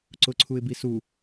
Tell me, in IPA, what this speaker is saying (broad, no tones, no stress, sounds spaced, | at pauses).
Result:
ǀ ʊ ǀʰ u ɪ̯ b i s u